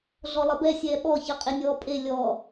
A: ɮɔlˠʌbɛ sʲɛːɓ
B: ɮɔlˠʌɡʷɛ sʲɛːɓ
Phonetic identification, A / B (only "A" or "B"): A